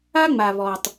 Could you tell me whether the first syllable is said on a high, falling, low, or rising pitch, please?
high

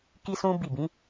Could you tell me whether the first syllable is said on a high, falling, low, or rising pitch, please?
high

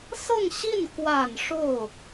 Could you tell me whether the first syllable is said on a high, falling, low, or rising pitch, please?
falling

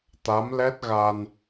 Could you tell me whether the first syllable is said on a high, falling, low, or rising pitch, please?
rising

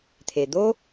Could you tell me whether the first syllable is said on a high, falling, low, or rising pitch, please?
low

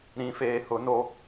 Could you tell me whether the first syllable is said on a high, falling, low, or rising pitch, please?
low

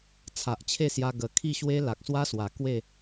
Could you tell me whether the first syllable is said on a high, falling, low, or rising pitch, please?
low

